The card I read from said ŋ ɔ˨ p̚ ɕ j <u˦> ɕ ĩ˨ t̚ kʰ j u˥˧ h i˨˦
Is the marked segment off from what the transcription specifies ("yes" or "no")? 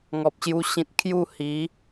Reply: yes